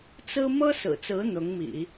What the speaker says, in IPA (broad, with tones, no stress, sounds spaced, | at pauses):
t͡s ɹ̩˥ m ɤ˥ s ɹ̩˨˩ t͡s ɹ̩˧˥ n̪ ʊ˧˥ ŋ m ḭ˨˩˦